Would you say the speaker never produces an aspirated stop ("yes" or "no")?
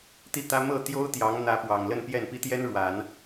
yes